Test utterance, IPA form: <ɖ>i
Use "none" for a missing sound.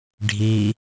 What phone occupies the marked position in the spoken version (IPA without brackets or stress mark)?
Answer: ɖʱ